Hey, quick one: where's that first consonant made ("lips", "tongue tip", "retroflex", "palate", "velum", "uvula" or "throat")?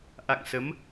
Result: throat